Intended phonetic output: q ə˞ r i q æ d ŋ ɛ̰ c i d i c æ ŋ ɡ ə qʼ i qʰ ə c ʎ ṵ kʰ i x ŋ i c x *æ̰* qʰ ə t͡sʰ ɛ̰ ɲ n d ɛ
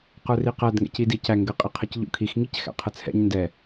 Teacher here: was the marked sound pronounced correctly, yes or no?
yes